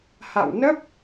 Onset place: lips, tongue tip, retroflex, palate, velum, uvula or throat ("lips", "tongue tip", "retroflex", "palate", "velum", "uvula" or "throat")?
throat